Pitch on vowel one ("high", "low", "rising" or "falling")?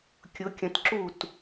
rising